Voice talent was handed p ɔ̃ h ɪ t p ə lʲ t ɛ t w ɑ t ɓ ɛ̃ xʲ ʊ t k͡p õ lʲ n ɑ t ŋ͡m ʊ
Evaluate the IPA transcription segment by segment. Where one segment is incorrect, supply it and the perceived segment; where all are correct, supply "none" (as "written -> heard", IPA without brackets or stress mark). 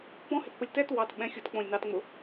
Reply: none